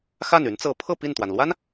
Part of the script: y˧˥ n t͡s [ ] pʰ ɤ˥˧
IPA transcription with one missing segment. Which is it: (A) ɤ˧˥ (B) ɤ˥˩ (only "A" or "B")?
A